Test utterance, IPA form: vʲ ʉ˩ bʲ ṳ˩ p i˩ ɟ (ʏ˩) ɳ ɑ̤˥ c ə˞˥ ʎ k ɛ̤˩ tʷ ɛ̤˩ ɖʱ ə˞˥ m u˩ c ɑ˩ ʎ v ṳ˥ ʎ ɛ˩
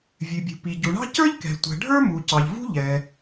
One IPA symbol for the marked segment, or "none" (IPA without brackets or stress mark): u˩